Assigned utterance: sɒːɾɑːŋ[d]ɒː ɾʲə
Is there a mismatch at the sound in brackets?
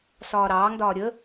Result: no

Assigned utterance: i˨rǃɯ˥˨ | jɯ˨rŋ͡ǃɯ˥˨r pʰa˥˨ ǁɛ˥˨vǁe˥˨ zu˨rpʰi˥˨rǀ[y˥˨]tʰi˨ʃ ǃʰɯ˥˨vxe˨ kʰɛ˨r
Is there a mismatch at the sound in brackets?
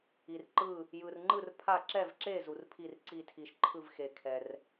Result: yes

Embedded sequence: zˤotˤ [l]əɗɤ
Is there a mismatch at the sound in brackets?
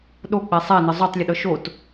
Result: yes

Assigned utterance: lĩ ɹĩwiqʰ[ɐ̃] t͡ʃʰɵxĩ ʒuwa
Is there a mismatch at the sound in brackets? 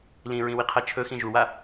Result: yes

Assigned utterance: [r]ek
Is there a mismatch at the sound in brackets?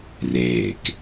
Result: no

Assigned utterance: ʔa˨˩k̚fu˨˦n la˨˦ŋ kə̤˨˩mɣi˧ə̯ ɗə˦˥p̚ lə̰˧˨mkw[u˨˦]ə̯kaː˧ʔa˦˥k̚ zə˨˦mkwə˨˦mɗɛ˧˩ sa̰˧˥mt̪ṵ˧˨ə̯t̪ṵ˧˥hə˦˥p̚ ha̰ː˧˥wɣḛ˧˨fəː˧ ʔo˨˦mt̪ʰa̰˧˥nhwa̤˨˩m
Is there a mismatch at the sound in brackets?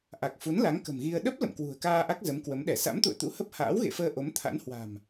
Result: yes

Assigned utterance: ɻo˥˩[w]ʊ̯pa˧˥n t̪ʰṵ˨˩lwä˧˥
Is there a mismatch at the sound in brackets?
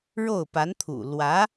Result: yes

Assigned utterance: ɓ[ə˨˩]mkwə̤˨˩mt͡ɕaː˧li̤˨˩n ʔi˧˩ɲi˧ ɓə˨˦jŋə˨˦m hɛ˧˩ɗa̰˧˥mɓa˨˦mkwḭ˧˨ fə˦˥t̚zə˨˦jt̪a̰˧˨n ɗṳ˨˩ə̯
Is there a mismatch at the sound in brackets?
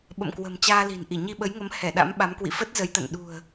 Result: yes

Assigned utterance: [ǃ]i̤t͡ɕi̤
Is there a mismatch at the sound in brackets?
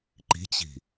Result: no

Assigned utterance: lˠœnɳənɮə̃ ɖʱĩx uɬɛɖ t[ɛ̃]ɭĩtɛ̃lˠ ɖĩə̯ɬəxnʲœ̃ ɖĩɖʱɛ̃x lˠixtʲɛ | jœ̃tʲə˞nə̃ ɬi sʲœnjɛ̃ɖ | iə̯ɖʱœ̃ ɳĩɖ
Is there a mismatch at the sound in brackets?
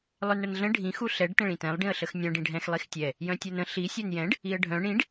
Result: yes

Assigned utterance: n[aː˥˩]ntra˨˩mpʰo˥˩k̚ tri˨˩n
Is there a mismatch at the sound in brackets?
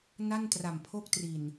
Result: yes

